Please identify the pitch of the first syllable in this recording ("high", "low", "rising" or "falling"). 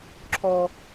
low